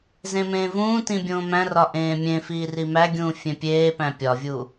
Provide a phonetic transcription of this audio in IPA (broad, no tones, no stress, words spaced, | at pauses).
zẽmẽːvũːtĩ bʲõːmæ̃rɒ ʔẽːmʲẽfiː rimæɡʲũː fʲẽpʲeːpæ̃ pʲɒvʲu